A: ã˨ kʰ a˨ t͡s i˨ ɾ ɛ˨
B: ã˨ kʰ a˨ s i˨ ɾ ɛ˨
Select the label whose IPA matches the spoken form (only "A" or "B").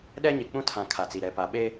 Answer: A